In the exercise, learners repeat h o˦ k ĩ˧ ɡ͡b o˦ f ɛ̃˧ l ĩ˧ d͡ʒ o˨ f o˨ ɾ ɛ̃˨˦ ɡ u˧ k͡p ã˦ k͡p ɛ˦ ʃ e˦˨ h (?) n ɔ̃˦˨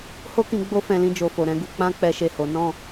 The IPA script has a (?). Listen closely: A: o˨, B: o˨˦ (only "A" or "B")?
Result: B